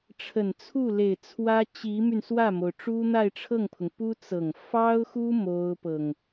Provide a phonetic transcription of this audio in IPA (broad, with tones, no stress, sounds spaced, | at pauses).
ʈ͡ʂʰ ə˨˩ n t͡sʰ u˥˩ l e˨˩ ɪ̯ t͡sʰ w ä˥ t͡ɕ i˧˥ m y˧ n s w ä˥˩ m o˩ ʊ̯ ʈ͡ʂ u˥ n̪ a˥˧ ɪ̯ ʈ͡ʂʰ ɤ˥˩ ŋ pʰ ʊ˩ ŋ p u˥ t͡s ɤ˨˩ ŋ f ɑ˥ ʊ̯ x u˥ m o˥ ʊ̯ p ɤ˨ ŋ